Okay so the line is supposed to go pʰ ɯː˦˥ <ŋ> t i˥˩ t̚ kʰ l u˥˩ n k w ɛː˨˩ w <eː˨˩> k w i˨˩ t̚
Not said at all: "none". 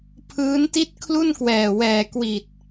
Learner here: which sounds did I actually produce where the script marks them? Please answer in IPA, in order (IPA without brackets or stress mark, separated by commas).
n, ɛː˨˩